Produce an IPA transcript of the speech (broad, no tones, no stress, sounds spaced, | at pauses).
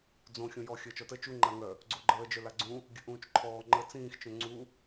d͡z õ xʲ õ j ɔ xʲ əː t͡ʃ ɔ t ə t͡ʃ u ŋ͡ǃ a ŋ œ | ɡ͡ǀ o ɡ͡ǃ əː d͡ʒ œ l a ɡ͡ǀ ũ | ɡʲ ə ʔ ũː t͡ʃ ǃʰ ɔː ŋ͡ǃ ə t͡s ĩː x t͡ʃ œ̃ ŋ͡ǀ u